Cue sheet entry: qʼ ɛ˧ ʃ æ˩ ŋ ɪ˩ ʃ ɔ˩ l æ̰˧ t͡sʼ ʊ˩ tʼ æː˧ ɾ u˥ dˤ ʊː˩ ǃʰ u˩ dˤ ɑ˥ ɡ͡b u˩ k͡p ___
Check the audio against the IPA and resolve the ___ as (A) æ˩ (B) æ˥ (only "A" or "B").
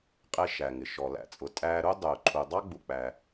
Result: A